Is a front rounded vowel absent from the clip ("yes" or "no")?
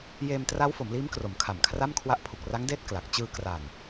yes